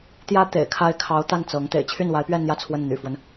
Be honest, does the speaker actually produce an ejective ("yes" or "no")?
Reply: no